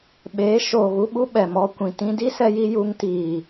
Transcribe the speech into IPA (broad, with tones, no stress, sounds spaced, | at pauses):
ɓ eː˨˦ ʃ oː˨ ɣ u˧ ɓ u˧ ɓ ɛ˨ m ɔ˧ kʷ ĩ˨ t ĩ˧ d i˦ s ɛ˧ j i˧ j u˧ ŋ t iː˨